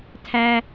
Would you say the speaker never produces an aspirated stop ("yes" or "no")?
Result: no